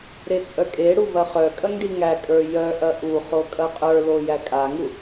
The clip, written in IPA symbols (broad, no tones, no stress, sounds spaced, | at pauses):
ɾ e t͡sʼ œ kʼ e ɽ u v ɐ χ œ kʼ ɐ ŋ ɖ i ŋ æ kʼ ə˞ j œ ʔ ɐ ʔ u χ o kʼ ɐ qʼ ə˞ l o j æ kʼ a ŋ u